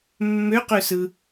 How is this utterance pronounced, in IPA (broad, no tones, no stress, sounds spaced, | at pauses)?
mː ø q ø s ɯ